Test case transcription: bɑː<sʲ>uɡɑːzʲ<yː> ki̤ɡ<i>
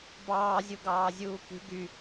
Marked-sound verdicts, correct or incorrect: incorrect: zʲ, incorrect: uː, incorrect: y

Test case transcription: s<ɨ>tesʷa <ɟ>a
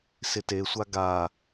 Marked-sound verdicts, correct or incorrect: incorrect: ɪ, incorrect: ɡ

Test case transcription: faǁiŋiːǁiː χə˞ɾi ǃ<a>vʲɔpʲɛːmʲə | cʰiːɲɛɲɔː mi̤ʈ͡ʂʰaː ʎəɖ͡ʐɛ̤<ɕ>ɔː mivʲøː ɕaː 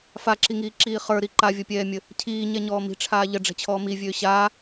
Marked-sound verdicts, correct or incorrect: correct, incorrect: t͡ɕʰ

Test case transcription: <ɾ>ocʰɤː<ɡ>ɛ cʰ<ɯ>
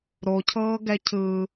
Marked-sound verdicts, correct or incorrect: correct, correct, correct

